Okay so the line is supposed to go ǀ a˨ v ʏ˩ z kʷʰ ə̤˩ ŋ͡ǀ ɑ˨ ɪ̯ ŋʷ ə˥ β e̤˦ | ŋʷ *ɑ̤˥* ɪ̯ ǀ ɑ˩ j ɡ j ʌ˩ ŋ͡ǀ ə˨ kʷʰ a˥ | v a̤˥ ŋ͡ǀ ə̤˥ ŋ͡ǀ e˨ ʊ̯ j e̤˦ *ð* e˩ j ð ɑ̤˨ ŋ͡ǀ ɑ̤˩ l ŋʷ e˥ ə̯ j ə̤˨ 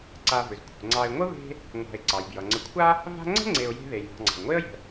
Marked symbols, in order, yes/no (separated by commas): no, yes